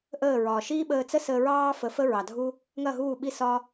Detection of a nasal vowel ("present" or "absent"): absent